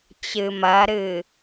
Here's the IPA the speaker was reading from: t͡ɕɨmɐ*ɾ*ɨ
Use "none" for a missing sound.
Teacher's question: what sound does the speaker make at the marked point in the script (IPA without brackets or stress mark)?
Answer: ɾ